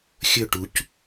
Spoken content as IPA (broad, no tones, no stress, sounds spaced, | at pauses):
xʲ ɵ ʈ u c